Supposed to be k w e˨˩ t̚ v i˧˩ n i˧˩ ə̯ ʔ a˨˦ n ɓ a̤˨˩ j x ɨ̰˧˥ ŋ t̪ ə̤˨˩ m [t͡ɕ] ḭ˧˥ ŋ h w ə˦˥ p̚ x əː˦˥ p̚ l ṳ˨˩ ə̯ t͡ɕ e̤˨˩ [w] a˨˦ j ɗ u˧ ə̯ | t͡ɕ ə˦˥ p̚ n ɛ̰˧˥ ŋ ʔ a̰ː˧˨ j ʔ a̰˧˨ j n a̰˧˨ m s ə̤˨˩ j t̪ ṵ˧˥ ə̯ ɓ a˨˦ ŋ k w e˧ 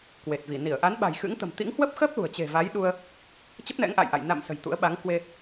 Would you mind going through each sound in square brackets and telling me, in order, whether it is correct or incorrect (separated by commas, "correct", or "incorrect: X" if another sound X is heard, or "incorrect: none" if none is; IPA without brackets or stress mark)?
incorrect: t̪, incorrect: v